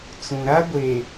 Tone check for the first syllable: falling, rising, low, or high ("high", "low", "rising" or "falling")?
low